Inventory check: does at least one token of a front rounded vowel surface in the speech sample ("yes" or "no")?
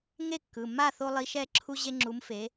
no